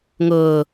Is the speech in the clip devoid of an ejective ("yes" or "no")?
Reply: yes